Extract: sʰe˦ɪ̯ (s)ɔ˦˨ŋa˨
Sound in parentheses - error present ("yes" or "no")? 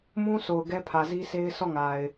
no